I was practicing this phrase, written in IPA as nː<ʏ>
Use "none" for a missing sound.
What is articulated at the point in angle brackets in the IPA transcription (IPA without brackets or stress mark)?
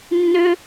ʏ